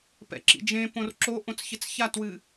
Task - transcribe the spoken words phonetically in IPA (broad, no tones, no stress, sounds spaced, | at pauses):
p ɛ̰ ǁ ḭ d͡ʒ ẽ p õ r ǁ o ʔ õ t͡s ç ɪ t͡s ç a t w ɨ